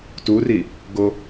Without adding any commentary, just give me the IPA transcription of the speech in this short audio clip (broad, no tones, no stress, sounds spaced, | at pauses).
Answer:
t u r i | ɡ o